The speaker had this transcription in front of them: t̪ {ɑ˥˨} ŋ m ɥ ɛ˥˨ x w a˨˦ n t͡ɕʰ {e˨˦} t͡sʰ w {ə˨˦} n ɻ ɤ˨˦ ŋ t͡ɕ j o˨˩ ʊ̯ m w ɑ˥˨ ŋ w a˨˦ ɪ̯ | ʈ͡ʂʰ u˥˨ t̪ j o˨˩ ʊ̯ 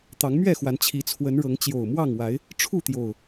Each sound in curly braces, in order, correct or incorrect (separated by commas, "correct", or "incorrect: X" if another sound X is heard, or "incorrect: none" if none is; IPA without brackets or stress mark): incorrect: ɑ˨˦, incorrect: i˨˦, correct